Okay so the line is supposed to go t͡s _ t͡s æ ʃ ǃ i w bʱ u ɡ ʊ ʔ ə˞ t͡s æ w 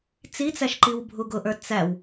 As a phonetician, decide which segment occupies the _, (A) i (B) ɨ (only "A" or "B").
A